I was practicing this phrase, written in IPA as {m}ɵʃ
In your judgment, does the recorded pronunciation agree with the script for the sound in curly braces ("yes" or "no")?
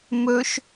yes